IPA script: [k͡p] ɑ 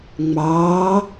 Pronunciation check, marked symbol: incorrect: ŋ͡m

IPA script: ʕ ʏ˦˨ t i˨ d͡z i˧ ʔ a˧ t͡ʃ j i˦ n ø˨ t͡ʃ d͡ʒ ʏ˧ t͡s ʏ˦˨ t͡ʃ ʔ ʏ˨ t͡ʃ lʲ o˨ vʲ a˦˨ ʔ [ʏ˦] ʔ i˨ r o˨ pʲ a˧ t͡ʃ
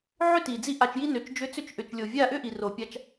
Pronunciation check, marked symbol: correct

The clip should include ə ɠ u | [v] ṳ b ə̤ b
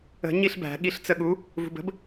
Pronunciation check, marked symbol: correct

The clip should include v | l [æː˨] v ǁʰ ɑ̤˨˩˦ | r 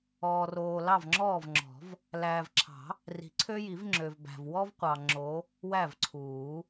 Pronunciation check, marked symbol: correct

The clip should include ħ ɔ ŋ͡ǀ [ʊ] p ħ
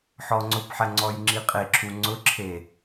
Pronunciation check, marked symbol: correct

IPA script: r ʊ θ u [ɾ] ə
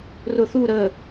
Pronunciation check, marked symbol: correct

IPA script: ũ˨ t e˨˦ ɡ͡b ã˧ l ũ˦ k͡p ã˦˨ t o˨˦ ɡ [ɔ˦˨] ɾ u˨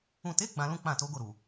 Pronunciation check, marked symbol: incorrect: o˦˨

